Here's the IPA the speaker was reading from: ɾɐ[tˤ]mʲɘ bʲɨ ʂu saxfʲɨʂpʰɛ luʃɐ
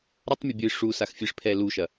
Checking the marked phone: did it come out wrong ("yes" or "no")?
no